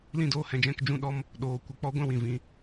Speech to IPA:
l ĩ˦ d oː˦ h ɛ̃˧ d͡ʒ ɛ̃˦ k d͡ʒ ũ˦ ɗ ɔ˦ m | ɗ oː˨˦ kʷ ə˧ k͡p ɔ˦ ɡʷ ɛ̃˦ w ĩ˨ v ĩ˧

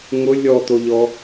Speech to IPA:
ŋ ʊ lʲ ɔ t̪ o ʎ ɔ

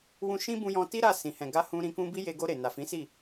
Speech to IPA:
w ũ˧ ʃ ĩ˦ b ũ˧ j ɔ̃˧ t i˦ ɾ a˦˨ s ĩ˨ h ɛ̃˨ ɡ a˧ h ũ˧ ɾ ĩ˧ k ũ˦ b i˦ j e˧ ɡ o˧ ɾ e˨ n a˨ f ĩ˨˦ s i˦˨

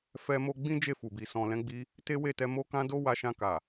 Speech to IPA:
f ɛ˦ m o˦ ɡ͡b ĩ˦ d͡ʒ e˦˨ f u˨ b i˨ s ɔ̃˨ l ɛ̃˨˦ ɡ͡b i˧ | t e˦ w e˦˨ t ɛ˧ m o˧ k ã˧ d o˦ w a˧ ʃ ã˧ k a˨

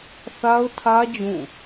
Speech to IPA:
θ a˦ ʊ̯ tʰ ä˦ d͡ʑ ũ˦˨

